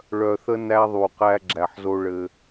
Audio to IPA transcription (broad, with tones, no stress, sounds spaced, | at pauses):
ɭ œ˨ θ ə˦ n æ˦ ðˤ u˨ q æ˦ ɡ͡ǁ æ˨ ħ z o˦ ɭ ɘ˦